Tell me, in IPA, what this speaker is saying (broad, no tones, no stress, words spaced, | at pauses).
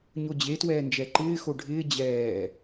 ɲod͡ʑetwɛːnd͡ʒɛ ǃɪːxo ɖʱɪː d͡ʑɛː